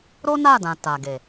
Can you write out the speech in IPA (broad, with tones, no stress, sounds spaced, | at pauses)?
ɾ o˦ n a˦˨ d ã˨ t a˨ ɡ e˨